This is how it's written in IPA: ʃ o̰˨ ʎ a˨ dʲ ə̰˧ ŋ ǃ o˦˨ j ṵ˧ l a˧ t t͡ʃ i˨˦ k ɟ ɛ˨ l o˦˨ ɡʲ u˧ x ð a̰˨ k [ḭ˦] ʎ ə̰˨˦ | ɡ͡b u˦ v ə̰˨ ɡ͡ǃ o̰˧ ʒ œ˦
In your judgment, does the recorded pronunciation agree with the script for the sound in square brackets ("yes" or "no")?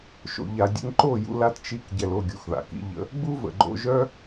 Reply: yes